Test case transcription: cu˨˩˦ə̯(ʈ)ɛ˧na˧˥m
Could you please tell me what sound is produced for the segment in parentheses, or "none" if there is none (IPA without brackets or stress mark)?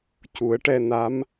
ʈ